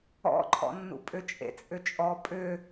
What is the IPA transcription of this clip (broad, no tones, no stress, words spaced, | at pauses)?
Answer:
ɔ̰ǃʰɔ̰nːṵ pʼʏt͡ʃʼḛt͡sʼʏt͡ʃʼɔ pʼʏ